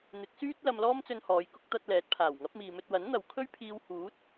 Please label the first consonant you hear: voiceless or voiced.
voiced